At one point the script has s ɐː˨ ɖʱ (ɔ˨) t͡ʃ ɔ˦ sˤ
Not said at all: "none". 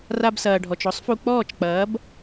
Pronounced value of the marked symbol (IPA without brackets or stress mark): ɔ˨